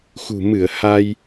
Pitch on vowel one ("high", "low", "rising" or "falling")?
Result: low